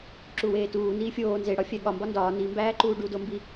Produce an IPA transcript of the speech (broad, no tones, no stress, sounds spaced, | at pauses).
ǁ u w eː t uː n iː fʲ oː n z e ɽ ɒ fʲ æ ɠ ɒ m b ɒ n d ɒː n i m b æː ǃ uː ɖ u d o m b i